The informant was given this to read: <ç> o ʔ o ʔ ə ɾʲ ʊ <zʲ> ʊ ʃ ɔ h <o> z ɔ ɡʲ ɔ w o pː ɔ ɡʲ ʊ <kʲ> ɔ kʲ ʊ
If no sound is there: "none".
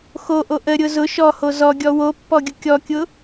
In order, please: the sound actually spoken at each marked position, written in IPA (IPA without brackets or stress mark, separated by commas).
x, z, o, kʲ